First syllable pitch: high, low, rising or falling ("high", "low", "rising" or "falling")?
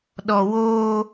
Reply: low